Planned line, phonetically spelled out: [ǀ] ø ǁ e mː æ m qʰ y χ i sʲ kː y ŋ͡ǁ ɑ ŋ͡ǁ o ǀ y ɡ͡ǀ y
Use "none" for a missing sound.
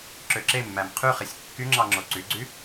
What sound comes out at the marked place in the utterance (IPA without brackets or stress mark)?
ǁ